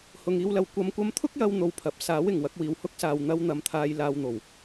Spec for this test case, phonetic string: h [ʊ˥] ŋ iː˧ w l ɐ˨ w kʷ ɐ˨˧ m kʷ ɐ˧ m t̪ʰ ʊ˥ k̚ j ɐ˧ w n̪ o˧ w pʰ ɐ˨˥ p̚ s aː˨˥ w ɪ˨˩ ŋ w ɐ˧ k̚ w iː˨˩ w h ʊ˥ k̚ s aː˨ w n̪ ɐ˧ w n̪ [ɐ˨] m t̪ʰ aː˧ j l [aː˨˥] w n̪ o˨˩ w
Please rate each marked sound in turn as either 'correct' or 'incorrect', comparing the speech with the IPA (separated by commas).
incorrect, correct, incorrect